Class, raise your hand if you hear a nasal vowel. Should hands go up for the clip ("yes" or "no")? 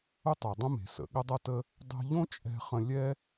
yes